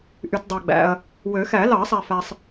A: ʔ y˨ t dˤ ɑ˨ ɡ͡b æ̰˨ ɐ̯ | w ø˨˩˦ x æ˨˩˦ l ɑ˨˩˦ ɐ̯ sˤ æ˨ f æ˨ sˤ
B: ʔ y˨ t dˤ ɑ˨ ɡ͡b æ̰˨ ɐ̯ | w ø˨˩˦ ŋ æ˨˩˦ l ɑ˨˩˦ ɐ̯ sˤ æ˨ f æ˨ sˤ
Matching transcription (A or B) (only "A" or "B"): A